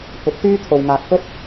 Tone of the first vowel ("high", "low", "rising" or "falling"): rising